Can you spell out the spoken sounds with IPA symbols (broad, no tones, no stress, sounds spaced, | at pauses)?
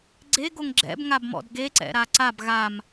ɡ͡ǀ e ɡ o ŋ ɡ͡ǁ ɛ̰ b ŋ a b m ɔ̰ d ɡ e ǀ ɛ̰ ɾ a ǀ a b ɣ a m